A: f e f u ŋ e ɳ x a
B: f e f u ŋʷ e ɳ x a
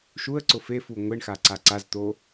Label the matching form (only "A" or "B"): B